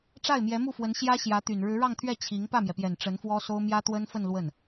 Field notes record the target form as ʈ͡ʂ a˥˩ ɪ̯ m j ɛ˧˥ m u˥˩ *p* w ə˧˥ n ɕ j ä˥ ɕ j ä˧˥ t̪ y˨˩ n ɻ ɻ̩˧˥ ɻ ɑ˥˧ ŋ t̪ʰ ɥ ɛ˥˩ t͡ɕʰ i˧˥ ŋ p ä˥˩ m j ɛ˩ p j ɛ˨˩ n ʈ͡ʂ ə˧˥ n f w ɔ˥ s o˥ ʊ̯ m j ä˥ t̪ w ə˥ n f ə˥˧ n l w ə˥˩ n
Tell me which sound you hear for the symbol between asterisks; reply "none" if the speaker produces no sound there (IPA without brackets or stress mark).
f